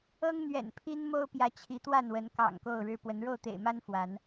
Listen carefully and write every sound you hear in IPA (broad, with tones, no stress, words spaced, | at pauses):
ɤ˦ŋn̪ɥɛ̰˨˩npʰi˦n mo˦ʊ̯pjä˨˦ t͡ɕʰi˨˦t̪wa˥˨nwə˨˦nkɑ̰˨˩ŋ ko˥˨ʊ̯ɻɻ̩˦pwə˨˦n ɻo˥˨ʊ̯t̪ḛ˨˩ɪ̯ma˦n fwa˨˦n